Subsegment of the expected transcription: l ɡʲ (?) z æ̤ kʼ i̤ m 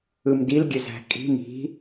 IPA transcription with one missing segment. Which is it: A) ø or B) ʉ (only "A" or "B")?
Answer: A